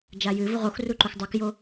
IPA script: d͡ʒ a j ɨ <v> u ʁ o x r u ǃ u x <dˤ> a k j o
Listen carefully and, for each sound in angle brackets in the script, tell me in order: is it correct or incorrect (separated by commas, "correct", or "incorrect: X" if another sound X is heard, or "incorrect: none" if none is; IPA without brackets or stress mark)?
correct, correct